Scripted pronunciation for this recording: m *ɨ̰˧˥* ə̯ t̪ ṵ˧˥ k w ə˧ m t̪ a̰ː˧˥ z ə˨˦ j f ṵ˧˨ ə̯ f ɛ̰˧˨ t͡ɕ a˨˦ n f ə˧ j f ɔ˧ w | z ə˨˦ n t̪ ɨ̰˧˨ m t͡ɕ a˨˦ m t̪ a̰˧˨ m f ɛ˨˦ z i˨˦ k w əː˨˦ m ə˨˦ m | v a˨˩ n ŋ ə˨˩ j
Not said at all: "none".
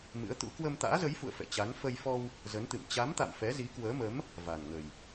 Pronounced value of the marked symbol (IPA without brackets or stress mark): ɨ̰˧˥